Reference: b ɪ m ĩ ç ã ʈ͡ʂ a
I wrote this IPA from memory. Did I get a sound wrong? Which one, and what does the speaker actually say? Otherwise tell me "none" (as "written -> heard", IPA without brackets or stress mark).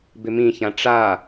none